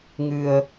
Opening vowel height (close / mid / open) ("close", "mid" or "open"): close